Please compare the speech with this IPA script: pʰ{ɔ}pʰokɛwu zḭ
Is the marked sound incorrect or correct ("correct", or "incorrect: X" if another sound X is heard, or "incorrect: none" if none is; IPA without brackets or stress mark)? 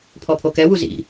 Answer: correct